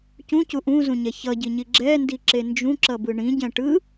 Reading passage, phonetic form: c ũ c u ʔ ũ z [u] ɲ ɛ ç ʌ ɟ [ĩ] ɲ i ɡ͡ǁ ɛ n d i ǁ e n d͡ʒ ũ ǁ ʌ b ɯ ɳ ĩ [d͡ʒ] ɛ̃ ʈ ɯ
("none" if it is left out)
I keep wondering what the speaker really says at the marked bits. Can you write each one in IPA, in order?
ũ, i, ɟ

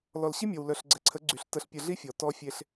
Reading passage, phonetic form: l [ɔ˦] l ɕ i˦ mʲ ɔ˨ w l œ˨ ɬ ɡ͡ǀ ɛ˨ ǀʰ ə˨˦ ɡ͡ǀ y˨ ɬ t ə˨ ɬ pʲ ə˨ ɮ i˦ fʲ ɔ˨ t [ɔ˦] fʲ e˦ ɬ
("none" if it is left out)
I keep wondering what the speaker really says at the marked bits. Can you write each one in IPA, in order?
ɔ˨, ɔ˦

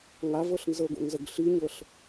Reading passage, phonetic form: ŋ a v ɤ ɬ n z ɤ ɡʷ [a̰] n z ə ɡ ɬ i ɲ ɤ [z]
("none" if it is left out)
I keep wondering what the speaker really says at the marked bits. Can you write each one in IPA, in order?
a̰, ɬ

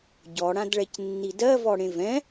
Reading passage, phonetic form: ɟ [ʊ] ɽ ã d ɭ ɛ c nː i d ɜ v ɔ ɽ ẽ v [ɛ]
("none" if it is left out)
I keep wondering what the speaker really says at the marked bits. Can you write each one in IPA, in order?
ɔ, ɛ̃

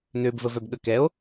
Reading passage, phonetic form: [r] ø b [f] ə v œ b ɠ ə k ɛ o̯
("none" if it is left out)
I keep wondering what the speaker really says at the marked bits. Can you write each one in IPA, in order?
n, v

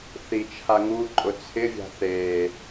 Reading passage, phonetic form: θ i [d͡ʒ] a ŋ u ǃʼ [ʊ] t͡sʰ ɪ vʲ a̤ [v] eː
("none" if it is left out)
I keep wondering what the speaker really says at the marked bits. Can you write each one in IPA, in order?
t͡ʃʰ, ʊ, θ

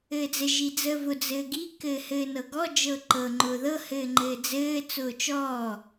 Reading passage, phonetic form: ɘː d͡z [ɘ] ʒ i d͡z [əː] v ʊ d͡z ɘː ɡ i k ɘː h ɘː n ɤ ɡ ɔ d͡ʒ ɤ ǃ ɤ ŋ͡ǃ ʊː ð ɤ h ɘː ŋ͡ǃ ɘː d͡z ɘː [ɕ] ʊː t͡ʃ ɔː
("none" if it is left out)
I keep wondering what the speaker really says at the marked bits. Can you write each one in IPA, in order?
ɘ, əː, t͡s

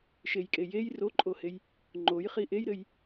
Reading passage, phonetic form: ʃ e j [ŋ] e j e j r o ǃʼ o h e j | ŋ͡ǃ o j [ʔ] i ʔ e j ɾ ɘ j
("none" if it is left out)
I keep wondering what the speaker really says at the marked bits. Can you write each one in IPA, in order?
kʼ, χ

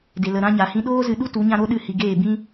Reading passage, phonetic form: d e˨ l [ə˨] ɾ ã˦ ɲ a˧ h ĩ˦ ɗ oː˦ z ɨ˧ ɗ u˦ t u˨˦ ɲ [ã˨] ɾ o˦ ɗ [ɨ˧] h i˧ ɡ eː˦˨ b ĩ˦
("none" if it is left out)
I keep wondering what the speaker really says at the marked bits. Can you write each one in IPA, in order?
ə˨, ã˦, ɨ˦˨

